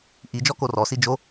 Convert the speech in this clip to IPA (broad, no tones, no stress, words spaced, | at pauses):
ʔid͡ʒɔ korɔsi d͡ʒo